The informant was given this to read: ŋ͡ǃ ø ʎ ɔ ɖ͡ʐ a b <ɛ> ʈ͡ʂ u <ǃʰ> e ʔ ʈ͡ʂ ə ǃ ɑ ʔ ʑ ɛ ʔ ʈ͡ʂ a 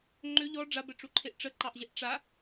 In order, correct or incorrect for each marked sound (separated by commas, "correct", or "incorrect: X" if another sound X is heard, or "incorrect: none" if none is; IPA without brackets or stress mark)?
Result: correct, correct